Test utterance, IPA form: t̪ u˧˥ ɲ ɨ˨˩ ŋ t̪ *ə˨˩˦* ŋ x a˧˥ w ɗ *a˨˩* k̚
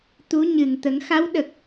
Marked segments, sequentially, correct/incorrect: correct, incorrect: ə˨˩

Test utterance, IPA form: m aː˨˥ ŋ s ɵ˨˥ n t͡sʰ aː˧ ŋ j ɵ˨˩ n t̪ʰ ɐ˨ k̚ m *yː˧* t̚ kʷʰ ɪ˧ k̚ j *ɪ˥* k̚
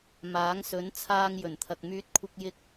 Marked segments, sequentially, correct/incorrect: correct, incorrect: ɪ˧

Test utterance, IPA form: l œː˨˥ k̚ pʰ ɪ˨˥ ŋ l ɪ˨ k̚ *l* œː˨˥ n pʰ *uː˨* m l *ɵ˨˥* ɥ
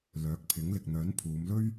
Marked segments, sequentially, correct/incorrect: incorrect: n̪, incorrect: uː˨˧, incorrect: ɵ˥

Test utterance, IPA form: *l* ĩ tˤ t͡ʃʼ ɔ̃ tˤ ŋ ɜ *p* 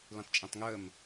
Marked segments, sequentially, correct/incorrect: correct, incorrect: m

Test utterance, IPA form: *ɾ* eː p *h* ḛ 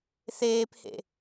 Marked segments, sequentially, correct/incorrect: incorrect: θ, correct

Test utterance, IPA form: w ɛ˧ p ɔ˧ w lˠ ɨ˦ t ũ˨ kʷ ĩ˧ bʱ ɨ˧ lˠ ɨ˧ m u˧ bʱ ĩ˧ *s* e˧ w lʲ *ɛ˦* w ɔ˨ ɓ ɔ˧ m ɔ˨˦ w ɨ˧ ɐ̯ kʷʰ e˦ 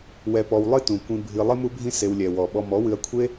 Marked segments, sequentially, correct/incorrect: correct, incorrect: ɛ˨

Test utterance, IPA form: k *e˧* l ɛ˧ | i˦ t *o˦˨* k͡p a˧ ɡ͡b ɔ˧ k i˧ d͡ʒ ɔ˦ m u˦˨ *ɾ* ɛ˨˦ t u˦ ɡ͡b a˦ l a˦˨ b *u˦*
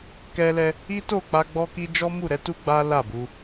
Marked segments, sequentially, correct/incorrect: incorrect: ɛ˧, correct, correct, incorrect: u˧

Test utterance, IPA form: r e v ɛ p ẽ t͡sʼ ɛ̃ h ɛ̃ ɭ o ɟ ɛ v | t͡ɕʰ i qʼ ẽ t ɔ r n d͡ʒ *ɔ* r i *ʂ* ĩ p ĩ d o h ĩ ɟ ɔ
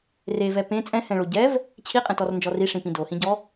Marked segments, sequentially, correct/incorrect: correct, correct

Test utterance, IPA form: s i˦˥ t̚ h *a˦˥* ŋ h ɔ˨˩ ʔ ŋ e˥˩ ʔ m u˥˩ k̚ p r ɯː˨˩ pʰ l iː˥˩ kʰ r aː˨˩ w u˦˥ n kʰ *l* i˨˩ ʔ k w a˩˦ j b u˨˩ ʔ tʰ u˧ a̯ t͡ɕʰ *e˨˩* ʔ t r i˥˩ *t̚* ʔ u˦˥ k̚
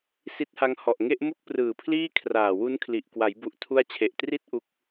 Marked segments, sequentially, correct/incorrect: correct, correct, correct, correct

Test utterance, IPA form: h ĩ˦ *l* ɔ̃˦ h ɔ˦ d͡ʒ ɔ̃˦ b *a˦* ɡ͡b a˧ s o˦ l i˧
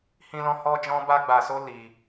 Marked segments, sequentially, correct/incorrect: correct, correct

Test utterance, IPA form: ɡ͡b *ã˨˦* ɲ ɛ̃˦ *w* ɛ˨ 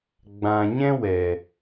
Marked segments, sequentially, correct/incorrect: incorrect: ã˨, correct

